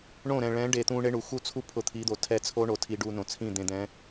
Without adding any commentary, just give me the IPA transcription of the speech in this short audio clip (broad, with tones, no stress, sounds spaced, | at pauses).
ɳ õ˦˨ ɾ ɛ̃˨ ɭ ɛ̃˨˦ ɖ e˨ t̪ ũ˧ ɳ e˦ ɳ u˨ x u˦ t͡sʰ u˦ pʰ ʊ˧ t̪ʰ i˨˦ d̪ o˨ tʰ ɛ˧ t͡sʰ o˦ ɳ o˨ tʰ i˧ ɖ u˧ n õ˨ t͡sʰ ĩ˦˨ d̪ ẽ˧ d̪ ɛ̃˨˦